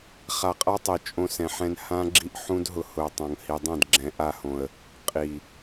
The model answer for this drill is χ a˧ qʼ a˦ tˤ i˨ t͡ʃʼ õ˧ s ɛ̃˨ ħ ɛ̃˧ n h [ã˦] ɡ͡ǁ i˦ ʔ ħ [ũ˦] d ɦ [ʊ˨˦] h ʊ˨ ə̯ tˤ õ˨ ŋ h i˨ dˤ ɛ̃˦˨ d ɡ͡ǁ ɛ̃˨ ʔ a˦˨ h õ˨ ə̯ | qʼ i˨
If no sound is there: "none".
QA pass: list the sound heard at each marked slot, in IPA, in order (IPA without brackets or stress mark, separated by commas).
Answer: ã˦, ũ˦, ʊ˧